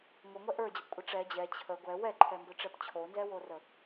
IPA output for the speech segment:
ŋ o ŋʷ ɛ ʔ ə˞ d͡ʑ ə p kʷʼ ə ʈ͡ʂ ɛ d͡ʑ ɛ t͡ɕʰ ə ɡʷ ɛ w ɛ ǃʰ ɛ m b ə˞ ʈ͡ʂ ɛ p t͡ɕʰ o n z ɛ w o r ə

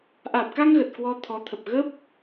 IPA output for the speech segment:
ʔ aː˨˩ p̚ k a˧ ŋ ɣ ə˨˩ t̚ k w ɔ˧ t̪ʰ ɔ˨˦ t̪ʰ ə˨˩ p̚ ɣ ə˦˥ p̚

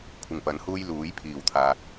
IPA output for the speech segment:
kʷʰ ɪ˨˩ ŋ p ɐ˨˥ n h uː˥ j l uː˨˥ j pʰ iː˨˩ w t̪ʰ aː˨ k̚

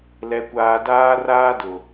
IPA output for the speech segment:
l ɛ˨ kʷ aː˨ d aː˦ r aː˦ d ʊ˨

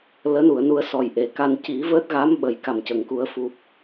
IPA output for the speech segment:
l əː˧˥ n u˨˩˨ ə̯ n u˧ ə̯ s ɔ˨˩ j ʔ e˨˩˦ k a˧ n c i˨˩˦ v əː˦˥ t̚ ɣ a˧˥ m ɓ ə˨˩ j k a˨˩ m c ə˨˩ ŋ k u˨˩˦ ə̯ f u˨˩ p̚

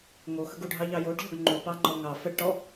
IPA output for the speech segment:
ŋ o x ə ɡ u ɖʱ ɑ ʎ ɑ j o ɖ ʎ ɔ ɡ ŋ͡ǃ u p ɑ ŋ͡ǃ ɔ ŋ ɑ f ə ɖ ʈ ɔ

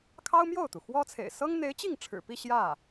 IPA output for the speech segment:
kʰ ɑ˥ ʊ̯ m j o˥˩ ʊ̯ t̪ u˩ x w ɔ˥ t͡sʰ ḛ˨˩ ɪ̯ s ɤ˥ ŋ n̪ e˧˥ ɪ̯ t͡ɕ i˥˩ ŋ ʈ͡ʂʰ ɻ̩˨˩ p i˥˧ ɕ j ä˥˩

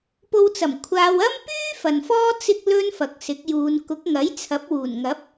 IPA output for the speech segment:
p o˧ w t͡s ɐ˨˩ m kʷʰ aː˧ w ɐ˥ m p yː˥ f ɐ˨ n f ɔː˥ t͡s ɪ˧ k̚ l ɵ˧ n f ɐ˨ k̚ s ɪ˨˥ k̚ j uː˨˧ n k ʊ˨˥ k̚ ŋ ɐ˨˥ j t͡sʰ ɐ˨˥ p̚ w uː˨˩ n ŋ ɐ˨˥ p̚

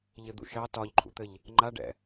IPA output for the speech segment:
ʎ ɘ d̪ ṵ ʃ ɑ t ɒ ʎ ǃʰ ṵ t̪ ɘ ʎ | ŋ͡ǃ a ɖ ɛ̰

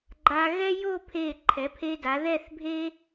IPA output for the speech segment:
ɡ͡ǃ a˧ ɣ ɛ˥ j o˥˧ pʰ e˧˩ ǃʰ ɛ˩˧ pʰ e˧ d a˩˧ ð ɛ˥˧ θ bʱ e˥

